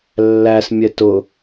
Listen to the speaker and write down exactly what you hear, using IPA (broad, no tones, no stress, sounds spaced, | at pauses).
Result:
lː æ s mʲ ɛ t ʊ